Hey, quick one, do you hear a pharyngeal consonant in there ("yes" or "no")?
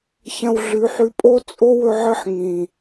yes